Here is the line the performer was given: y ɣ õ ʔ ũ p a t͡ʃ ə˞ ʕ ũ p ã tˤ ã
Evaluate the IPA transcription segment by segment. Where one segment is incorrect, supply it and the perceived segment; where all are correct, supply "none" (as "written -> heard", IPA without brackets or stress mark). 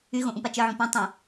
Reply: none